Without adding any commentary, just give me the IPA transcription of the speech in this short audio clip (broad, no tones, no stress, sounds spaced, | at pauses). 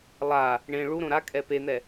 lˠ a | ɳ ẽ ɭ u ɾ õ ɾ a kʼ ɛ p e n̪ ɛ